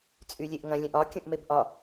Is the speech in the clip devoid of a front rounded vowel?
no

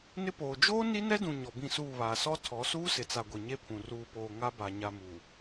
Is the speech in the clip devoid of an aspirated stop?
no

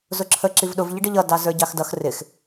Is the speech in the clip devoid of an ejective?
yes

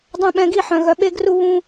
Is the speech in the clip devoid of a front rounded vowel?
no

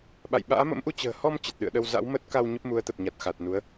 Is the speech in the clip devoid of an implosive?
no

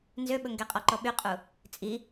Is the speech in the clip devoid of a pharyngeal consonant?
yes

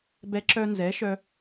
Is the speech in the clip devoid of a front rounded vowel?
no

